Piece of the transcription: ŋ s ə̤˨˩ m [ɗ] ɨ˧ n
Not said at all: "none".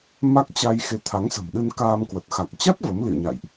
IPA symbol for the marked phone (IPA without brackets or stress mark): ɗ